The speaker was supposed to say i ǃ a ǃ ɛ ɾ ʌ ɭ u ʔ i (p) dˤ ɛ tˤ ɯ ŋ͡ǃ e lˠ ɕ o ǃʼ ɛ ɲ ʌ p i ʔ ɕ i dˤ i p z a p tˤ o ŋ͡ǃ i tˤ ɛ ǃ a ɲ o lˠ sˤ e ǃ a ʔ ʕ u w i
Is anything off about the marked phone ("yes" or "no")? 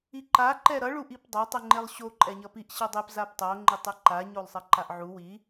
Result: no